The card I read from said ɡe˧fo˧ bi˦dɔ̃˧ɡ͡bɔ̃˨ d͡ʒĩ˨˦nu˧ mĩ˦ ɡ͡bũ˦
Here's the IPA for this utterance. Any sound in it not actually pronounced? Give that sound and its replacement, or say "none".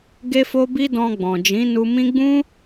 none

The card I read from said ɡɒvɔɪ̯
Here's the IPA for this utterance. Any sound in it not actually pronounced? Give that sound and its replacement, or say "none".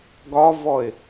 none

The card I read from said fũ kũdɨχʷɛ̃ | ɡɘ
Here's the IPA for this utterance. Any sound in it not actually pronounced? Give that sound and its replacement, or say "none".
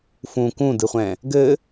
none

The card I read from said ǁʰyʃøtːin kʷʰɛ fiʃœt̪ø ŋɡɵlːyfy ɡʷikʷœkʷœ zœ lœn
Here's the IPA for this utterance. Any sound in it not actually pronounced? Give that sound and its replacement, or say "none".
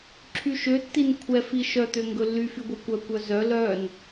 none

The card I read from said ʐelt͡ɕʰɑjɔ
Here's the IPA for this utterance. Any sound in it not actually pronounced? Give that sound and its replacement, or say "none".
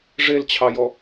none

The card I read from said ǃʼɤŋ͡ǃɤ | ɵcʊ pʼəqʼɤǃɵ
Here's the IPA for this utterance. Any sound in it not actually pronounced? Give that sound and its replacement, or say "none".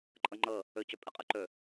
ʊ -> ɵ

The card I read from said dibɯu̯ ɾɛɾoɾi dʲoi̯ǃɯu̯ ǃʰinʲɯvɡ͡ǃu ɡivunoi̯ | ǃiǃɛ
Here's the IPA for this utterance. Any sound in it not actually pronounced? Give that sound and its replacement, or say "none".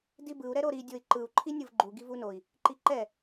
none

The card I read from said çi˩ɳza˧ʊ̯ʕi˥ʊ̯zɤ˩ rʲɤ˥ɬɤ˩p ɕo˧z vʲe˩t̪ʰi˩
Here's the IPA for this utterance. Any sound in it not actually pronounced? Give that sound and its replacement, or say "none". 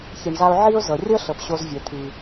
none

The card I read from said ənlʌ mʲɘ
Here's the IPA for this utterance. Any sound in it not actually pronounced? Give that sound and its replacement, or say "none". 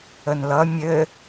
none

